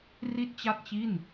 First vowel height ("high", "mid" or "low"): high